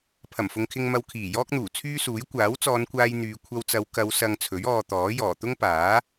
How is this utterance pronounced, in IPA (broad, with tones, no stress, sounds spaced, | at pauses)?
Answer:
pʰ ɐ˨˩ m f ʊ˨ ŋ kʰ ɪ˧ ŋ m ɐ˧ w kʰ iː˨˩ j ɔː˥ k̚ n̪ uː˨˩ t͡sʰ yː˥ s uː˨˥ j kʷ aː˨˥ w t͡s ɔː˨˧ n kʷ aː˧ j n̪ yː˨˧ kʷʰ ɐ˧ w t͡s ɐ˨˧ w k ɐ˨˧ w s ɐ˨ ŋ t͡sʰ ɵ˨˥ ɥ ɔː˧ t̪ ɔː˨˥ j ɔː˨˩ t̪ ʊ˥ ŋ p aː˨˥